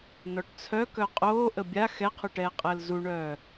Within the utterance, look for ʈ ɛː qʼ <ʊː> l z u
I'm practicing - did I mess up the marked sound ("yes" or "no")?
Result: yes